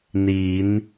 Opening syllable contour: rising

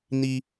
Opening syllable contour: high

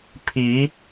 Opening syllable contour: rising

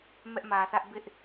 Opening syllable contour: high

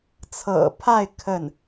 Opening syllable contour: low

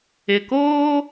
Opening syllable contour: low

